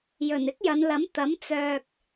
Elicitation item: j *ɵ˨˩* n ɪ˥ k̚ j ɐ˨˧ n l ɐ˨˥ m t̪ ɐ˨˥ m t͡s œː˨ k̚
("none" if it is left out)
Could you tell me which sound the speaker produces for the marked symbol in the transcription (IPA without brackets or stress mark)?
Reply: ɵ˨˩